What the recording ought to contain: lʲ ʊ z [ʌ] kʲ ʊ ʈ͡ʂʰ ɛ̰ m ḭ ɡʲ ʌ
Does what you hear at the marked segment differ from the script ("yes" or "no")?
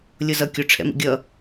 no